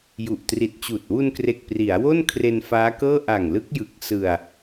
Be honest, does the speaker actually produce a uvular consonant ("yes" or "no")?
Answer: no